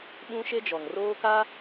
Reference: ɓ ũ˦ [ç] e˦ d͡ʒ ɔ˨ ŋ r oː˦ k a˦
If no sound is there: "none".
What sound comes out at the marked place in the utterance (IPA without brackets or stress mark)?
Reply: ʃ